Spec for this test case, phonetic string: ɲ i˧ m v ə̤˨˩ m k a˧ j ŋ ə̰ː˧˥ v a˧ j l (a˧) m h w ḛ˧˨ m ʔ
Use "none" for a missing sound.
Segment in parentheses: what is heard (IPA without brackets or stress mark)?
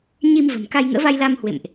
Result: a˧